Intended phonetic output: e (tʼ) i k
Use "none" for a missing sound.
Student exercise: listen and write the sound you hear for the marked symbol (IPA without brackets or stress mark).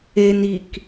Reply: n